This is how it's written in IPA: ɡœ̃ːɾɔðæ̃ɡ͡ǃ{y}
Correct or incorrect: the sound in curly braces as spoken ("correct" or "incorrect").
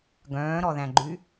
correct